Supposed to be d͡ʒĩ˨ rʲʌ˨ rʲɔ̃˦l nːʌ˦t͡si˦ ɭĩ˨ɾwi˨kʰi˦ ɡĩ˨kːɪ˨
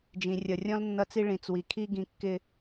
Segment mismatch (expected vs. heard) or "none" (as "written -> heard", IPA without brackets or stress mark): ɾ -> t͡s